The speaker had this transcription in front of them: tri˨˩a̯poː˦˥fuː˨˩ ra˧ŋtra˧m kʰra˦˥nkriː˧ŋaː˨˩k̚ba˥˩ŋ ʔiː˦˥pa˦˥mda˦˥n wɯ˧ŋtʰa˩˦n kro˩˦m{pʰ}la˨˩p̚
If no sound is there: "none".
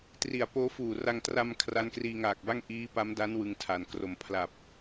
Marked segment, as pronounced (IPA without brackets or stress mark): pʰ